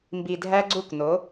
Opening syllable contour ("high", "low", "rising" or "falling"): low